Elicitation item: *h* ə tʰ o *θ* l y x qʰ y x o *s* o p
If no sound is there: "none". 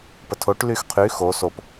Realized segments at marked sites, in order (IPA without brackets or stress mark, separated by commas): p, ʈ, s